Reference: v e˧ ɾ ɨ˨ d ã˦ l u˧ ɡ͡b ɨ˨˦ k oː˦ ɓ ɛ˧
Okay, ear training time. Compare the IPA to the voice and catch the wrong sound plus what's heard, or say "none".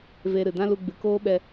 none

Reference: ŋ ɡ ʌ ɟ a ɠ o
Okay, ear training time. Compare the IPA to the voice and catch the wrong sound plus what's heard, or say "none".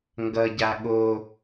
none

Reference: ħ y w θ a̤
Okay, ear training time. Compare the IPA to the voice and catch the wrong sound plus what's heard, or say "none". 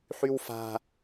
θ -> f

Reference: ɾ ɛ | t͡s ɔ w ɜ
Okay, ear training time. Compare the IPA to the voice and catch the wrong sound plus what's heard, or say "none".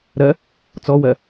ɛ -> ɜ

